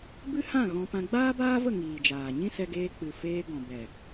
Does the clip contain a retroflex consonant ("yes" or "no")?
no